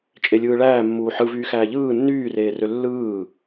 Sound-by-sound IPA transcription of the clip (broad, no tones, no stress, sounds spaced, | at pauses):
t͡ʃʼ e lʲ ɯː ɭ æː mː uː ħ ɯ v yː x æː ʎ ɯː nː yː r eː r ø lː ɯː